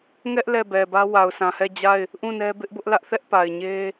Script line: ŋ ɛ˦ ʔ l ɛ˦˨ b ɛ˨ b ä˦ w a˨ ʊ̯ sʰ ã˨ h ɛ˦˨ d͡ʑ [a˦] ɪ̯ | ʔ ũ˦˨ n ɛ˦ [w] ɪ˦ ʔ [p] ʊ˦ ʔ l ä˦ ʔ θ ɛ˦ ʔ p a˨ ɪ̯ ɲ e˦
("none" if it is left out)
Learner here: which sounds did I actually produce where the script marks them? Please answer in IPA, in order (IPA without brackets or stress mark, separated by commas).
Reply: a˦˨, b, b